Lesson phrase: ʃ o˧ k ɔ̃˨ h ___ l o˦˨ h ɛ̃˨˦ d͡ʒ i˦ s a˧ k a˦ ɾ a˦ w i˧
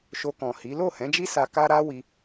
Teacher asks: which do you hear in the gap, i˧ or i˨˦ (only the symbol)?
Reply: i˨˦